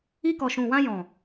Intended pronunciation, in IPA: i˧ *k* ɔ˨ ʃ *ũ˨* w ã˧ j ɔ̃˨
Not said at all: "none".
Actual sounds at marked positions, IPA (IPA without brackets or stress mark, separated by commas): k, ũ˨